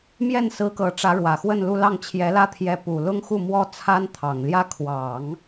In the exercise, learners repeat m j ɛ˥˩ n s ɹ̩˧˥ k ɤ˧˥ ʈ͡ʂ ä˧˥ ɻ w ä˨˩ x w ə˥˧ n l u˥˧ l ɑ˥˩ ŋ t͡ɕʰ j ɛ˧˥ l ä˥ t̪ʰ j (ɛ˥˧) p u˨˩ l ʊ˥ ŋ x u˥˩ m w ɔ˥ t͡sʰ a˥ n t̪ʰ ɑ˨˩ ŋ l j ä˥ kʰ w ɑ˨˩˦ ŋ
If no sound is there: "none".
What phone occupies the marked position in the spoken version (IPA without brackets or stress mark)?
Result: ɛ˧˥